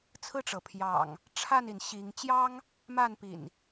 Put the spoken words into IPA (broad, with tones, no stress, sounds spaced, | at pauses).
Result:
t͡sʰ ɹ̩˥˨ ʈ͡ʂ ɤ˩ pʰ j ɑ̰˨˩ ŋ | ʈ͡ʂʰ a˥˨ n i˩ n ɕ i˨˦ ŋ t͡ɕ j ɑ˦ ŋ | m a˥˨ n p ḭ˨˩ n